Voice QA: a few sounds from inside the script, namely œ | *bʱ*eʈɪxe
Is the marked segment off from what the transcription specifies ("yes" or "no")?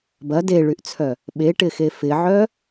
yes